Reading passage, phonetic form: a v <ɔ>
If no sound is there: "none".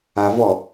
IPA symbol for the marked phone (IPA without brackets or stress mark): ɔ